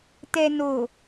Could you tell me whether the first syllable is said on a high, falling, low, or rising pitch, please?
low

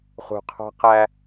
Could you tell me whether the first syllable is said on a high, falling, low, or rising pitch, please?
low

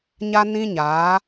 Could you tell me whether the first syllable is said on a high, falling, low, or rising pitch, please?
high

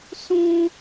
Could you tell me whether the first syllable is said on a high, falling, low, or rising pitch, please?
high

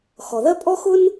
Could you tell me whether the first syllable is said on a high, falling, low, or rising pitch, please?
low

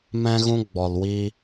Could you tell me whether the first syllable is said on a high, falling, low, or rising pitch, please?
high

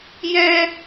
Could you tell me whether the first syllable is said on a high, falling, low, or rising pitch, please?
high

